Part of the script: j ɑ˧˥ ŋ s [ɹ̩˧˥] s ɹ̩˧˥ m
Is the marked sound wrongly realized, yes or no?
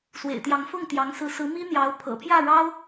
no